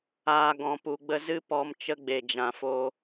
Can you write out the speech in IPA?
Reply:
aː˨ ɡɔ̃˨pu˨ɡ͡bə˧ zɨ˦ pɔ˧m t͡ʃə˧ɡ͡be˨ d͡ʒã˨fo˧

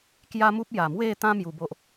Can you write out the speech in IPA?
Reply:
kja˦mu˦p̚ ja˨˩mwe˥˧t̪ã˦ mju˧bo˦ʔ

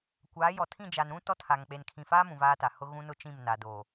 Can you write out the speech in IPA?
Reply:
kʷaː˨˦jɔ˨ tʰĩ˦˨d͡ʒa˨nɾũ˦ tɔ˦tʰa˨ŋ k͡pe˨nkʰĩ˨faː˦mũ˨ vaː˦ta˨ hʊ˦ ɣũ˦nʊ˦ t͡ʃĩ˦˨m na˨doː˨

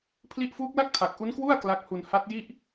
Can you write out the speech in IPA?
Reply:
pʰli˦˥ʔfuː˦˥k̚la˥˩k̚ tʰa˨˩k̚ ʔu˦˥nkwu˥˩a̯ kla˦˥k̚hu˧n ha˦˥t̚ji˥˩ʔ

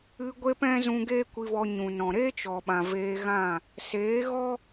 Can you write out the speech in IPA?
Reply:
ɨ˧ ɡʷe˦pɛ̃˦ zũ˧ ɡeː˦kʷi˧vɔ˧ ɲũ˨nɔ̃˨ ɾeː˦t͡ʃɔ˨ɓã˨ veː˧ɣã˦˨ | seː˨˦ɣɔ˦

